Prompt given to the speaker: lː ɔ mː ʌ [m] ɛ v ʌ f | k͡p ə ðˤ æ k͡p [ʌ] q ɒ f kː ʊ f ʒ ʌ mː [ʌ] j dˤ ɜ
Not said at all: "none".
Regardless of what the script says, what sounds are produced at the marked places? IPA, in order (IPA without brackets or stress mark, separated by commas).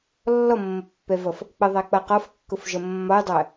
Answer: pː, ʌ, ɒ